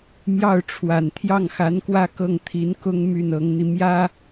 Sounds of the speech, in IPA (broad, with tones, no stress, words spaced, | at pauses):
mjɑ˥˩ʊ̯ʈ͡ʂʰwa˨˩n t̪ʰjɑ˥˩ŋxa˧˥nkwä˥ kɤ˥˩ŋt̪ʰi˧˥nkʊ˥ŋ my˥˩nɤ˧˥ŋn̪i˧ mjä˥